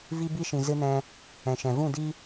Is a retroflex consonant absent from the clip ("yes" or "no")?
yes